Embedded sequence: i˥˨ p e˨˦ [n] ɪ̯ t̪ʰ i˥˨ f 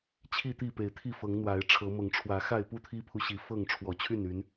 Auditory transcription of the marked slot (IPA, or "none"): none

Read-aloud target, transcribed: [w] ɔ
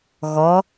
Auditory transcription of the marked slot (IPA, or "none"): ɣ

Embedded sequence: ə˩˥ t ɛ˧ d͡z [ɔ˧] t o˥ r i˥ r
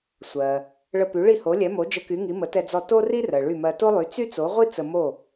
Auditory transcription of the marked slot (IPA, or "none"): ɔ˧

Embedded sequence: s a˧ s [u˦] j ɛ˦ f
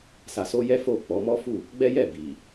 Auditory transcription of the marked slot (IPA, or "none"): o˦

